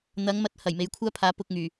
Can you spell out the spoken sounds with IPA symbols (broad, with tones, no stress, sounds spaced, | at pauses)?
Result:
n̪ ɐ˨˥ ŋ m ɐ˨˥ t̚ h ɐ˨˩ j m e˨˥ j kʷʰ aː˥ pʰ aː˨˥ p ʊ˧ k̚ ŋ yː˨˩